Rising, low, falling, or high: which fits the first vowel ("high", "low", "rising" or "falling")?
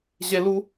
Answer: high